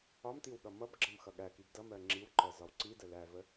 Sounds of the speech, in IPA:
ɒmtiw ɠʌmʌbɡ͡ǁʌm xʌɠækib dʌ mɜŋ͡ǁiwǃɜ zɒwǀidə lævə

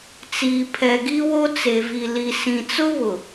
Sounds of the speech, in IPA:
t͡siː˨pʰɛ˨ɡi˦wo˦ t͡se˨vi˨ li˨sĩ˨t͡sʊ˦βʊ˨

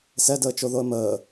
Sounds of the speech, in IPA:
sɛdəːt͡ʃoðoə̯ məː

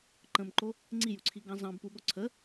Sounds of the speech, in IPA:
ǃə̃mǃo | ŋ͡ǀijuǀʰiɡɑ̃ zɑ̃bpuɠo ǀʰə

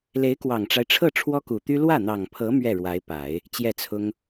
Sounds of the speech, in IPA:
le˧˥ɪ̯kwɑ˨˩ŋʈ͡ʂa˦ɪ̯ʈ͡ʂʰɤ˥˩ ʈ͡ʂʰwɔ˥ku˨˩t̪y˥ lwä˥˩n̪ɑ˨˩ŋpʰɤ˧˥ mɥɛ˥˩ɻwa˧˥ɪ̯pa˨˩˦ɪ̯ | t͡ɕjɛ˥˩t͡sʰʊ˥ŋ

